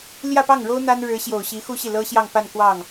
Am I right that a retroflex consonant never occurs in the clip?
no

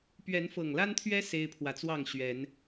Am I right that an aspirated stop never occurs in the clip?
no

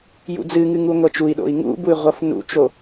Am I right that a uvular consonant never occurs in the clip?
no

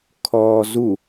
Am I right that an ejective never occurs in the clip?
yes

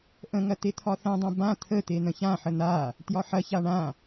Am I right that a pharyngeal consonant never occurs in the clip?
no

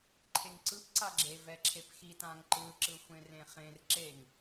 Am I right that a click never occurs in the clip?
no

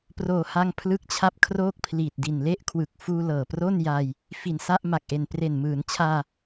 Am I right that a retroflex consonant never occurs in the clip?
yes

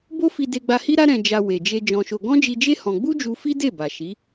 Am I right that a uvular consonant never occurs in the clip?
yes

